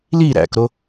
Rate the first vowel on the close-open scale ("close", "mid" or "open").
close